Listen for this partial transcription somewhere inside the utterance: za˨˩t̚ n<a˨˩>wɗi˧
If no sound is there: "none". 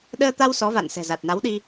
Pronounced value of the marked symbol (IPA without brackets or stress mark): a˨˦